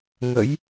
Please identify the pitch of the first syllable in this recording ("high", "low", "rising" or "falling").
rising